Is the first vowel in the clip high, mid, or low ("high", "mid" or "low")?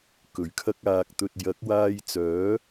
mid